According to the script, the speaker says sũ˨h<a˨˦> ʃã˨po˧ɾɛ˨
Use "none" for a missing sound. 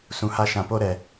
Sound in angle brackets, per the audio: a˧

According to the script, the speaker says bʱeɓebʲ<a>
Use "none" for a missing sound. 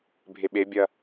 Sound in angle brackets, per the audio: ɐ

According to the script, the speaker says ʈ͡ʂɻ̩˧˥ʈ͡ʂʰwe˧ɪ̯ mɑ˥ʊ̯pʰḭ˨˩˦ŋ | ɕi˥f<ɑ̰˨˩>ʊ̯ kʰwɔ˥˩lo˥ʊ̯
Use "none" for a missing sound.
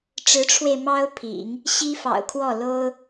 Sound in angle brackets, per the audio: ɑ̰˨˩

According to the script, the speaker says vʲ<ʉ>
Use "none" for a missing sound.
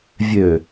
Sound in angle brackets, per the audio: ø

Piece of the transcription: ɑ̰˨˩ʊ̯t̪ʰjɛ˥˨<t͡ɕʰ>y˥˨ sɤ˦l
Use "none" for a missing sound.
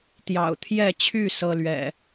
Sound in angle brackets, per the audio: t͡ɕʰ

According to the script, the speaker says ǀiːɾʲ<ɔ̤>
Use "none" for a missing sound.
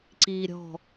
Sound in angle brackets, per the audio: ɔ̤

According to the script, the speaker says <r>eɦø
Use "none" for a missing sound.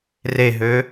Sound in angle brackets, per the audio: r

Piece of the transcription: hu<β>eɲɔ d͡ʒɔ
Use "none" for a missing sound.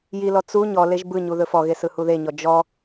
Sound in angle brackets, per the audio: ð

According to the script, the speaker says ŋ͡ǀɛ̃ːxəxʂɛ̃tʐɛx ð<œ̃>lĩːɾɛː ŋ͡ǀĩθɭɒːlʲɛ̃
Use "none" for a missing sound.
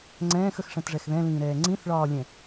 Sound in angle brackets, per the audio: ɛ̃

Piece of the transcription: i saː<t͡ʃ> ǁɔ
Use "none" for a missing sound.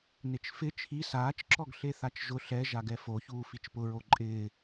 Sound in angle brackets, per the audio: t͡ʃ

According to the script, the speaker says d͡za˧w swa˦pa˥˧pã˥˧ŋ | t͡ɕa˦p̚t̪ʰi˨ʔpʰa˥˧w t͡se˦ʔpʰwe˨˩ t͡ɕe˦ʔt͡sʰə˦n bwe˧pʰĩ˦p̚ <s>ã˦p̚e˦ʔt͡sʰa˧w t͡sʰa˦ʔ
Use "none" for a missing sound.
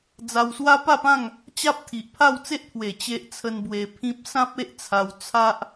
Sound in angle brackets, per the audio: s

